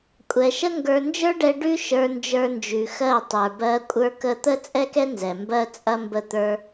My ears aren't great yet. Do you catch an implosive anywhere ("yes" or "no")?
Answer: no